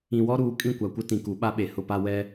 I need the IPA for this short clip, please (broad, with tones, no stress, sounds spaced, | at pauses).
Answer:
ĩ˨ w ɔ˦ ɾ uː˨ kʼ ĩ˦˨ kʷ a˨ kʷ ɪ˦ t ĩ˨ k u˨˦ ɓ a˦ ɓ e˨ h ʊ˦ p a˦ w ɛ˦